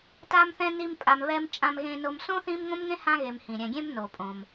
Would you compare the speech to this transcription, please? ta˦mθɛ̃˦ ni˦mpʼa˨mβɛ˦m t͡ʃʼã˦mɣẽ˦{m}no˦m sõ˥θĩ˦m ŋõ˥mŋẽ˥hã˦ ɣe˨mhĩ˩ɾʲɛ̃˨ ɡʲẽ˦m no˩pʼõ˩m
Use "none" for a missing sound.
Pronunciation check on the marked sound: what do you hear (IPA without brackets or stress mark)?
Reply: none